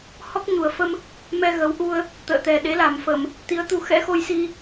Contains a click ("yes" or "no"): no